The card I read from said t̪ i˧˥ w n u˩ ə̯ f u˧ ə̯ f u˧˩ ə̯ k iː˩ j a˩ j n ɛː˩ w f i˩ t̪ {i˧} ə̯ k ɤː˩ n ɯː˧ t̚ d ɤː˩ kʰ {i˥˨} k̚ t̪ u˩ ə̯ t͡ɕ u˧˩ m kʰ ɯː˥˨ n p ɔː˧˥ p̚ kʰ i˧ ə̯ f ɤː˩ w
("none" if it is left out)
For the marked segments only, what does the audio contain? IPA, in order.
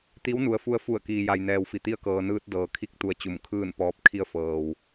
i˧, i˧

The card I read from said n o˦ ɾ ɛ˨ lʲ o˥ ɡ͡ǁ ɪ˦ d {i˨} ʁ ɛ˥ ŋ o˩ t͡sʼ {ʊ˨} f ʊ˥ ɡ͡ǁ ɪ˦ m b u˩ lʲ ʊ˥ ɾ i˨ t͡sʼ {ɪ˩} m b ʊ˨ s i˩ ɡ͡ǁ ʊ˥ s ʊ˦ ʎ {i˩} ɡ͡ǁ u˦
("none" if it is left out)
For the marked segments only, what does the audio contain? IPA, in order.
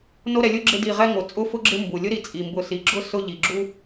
i˨, ʊ˥, i˩, i˩

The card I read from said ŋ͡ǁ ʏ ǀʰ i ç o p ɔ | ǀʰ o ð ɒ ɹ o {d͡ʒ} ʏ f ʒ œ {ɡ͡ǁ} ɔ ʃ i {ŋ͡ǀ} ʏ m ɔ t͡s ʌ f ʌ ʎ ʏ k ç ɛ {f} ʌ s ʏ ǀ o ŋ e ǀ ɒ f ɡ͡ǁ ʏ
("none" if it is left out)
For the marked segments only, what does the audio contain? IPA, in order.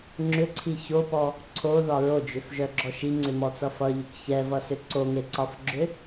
d͡ʒ, ɡ͡ǁ, ŋ͡ǀ, v

